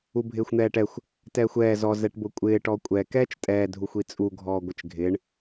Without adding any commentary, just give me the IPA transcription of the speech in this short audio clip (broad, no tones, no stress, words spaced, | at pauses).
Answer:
ubʱɪːxʷn̪ɛːʈɛxʷ | tɛːxʷɛː zɔ zɛʈbʊkʷʼɪː ʈɔkʷʼɛ kɛːt͡ʃtʼɛː dʱuxʷit͡sʼu ɡʱɔːɡʷɪt͡ʃɡʱɪːɳ